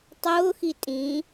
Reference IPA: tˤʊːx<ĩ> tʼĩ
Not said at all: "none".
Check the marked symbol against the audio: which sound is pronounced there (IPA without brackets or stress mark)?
i